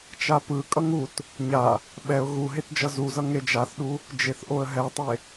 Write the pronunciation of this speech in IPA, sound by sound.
t͡ʃapɯkʼʌŋ ut | ɲa | ɓɛʊ̯ ɣu ɦetd͡ʒʌzuzʌ ŋed͡ʒaθɗu | d͡ʒeθʔoə̯ɦɛtˤe

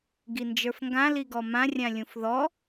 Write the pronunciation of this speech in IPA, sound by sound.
ɡind͡ʒə˞fŋɡã liɡɔmã rʲãlʲũfðɔ

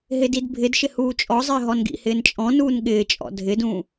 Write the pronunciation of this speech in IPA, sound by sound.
ɦɪdidbʱɪdʃɪ huːt͡ʃʼɔzˤɪː ɦɔnɡḭhɪːn t͡ʃʼɔ̃nuːn ɠɪːt͡ʃʼɔ̰ dʱɪdũː

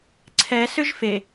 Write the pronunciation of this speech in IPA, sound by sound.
ǀʰɛ sʏʒfe

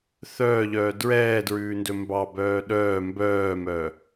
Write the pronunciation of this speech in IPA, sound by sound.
θœːʎœː dɹɛːdɹʉːndɵ mbɑbœː ɗœː mbœːmœ

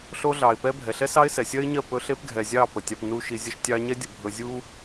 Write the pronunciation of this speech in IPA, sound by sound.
ɬo˧ɮɑ˨ɪ̯pɛ˧ bʱɛ˨ɬɛ˦sɑ˦ɪ̯sɛ˨ sʲɜ˦ɪ̯ɲɜ˦˨ pɵ˧ɬe˦pɡʱɛ˨zʲɑ˦˨ pə˨tʲɑ˧pnu˦ʃi˧ zʲə˧ʃtʲɑ˧ɲɛ˦ dʲə˧bʱɵ˦ zʲu˦

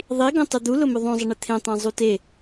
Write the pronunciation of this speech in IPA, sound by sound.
ðˤi ɡõtˤɪd̪u lʊmʊðˤõzˤɪ ɳɪt̪ʰẽtˤẽ zˤute

